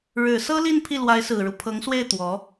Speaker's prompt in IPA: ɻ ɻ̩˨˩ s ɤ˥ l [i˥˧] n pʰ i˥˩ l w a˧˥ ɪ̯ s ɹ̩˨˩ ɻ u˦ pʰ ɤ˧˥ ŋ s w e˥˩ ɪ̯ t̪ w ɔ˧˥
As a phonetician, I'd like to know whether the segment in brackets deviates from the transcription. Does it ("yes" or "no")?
no